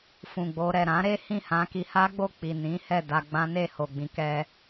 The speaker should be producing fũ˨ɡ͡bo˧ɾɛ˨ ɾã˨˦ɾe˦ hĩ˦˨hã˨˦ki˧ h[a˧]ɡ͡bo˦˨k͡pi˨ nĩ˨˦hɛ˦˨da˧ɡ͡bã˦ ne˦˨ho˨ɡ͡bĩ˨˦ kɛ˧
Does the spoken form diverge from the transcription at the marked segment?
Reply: yes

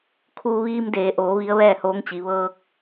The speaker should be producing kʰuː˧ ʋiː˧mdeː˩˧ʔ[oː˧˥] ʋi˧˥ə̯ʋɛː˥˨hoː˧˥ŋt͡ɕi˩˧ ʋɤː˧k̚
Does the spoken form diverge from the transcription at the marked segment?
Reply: yes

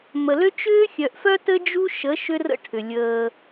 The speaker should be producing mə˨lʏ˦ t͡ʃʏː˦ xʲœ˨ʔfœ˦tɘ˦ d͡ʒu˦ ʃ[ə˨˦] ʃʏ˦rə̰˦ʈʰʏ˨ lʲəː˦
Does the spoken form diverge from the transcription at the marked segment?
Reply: no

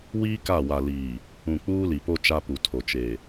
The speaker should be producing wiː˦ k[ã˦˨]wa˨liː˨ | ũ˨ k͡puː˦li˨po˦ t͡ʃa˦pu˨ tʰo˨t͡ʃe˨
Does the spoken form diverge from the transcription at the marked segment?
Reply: yes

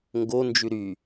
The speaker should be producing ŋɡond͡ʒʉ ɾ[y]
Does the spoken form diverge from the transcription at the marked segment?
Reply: no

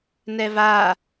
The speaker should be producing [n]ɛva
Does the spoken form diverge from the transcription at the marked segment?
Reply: no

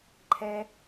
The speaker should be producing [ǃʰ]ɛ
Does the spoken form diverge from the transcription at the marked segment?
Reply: no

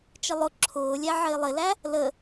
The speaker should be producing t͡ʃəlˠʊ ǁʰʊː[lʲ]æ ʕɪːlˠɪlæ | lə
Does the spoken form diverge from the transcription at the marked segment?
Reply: no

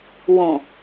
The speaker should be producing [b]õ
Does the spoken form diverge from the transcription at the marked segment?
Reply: yes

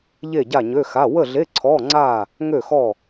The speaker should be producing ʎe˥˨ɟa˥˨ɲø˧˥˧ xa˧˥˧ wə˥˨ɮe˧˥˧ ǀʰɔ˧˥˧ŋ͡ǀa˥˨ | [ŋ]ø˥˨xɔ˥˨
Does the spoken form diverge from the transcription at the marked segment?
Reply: no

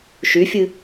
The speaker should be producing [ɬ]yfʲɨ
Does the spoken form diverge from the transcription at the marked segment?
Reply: yes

